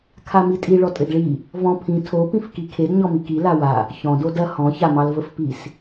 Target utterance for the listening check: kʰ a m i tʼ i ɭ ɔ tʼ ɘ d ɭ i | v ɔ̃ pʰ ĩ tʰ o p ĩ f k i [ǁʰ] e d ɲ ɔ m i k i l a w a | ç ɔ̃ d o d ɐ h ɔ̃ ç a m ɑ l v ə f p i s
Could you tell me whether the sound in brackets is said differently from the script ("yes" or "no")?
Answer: yes